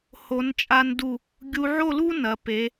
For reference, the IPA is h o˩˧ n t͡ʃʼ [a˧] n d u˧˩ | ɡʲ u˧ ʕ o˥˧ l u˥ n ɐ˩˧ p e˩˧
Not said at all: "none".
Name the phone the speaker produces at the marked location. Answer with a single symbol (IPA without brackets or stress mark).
a˧